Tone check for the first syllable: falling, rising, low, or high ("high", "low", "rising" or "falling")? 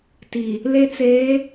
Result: low